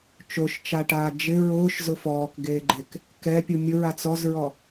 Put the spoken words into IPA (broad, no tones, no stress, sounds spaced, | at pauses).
t͡ʃ o ʃ t͡ʃ a ʈ aː d͡ʒ ɪ ɹ ʊː ʃ z ʊ f ɔː k ɡ eː ɡ͡ǃ e k | k ɛ pʲ u mʲ ʊ ɹ a t͡s ɔ z ɹ ɔ